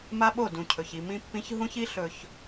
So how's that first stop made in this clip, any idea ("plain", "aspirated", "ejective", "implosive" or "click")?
implosive